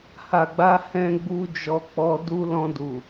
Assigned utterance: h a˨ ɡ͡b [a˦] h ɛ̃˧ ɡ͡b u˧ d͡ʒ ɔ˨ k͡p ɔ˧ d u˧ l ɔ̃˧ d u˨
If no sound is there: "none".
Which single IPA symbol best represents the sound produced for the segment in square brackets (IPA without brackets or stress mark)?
a˧